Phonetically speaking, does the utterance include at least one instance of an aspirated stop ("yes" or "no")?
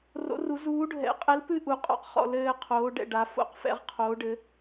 yes